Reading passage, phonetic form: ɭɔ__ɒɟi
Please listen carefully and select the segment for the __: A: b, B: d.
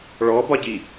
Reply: A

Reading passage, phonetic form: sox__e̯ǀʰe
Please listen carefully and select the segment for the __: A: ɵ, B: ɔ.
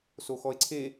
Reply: B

